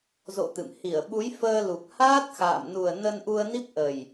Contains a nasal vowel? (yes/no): no